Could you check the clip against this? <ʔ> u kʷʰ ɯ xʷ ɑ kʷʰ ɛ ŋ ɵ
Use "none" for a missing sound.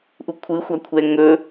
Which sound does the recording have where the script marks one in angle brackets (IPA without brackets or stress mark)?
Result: ʔ